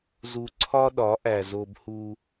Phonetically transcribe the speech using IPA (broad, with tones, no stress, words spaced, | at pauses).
zu˨ǀʰɒ˦ɗɒ˨˦ʔæ˨ zo˦bhu˦